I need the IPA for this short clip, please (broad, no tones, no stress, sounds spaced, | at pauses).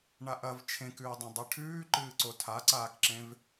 ɳ a ʔ ɐ v t͡ʃʰ ẽ k ʉː dˤ ɐ̃ dˤ i ʈʰ ʉː ǃ ɨː ǀ o tʰ a ǀ aː k ǁ ẽ v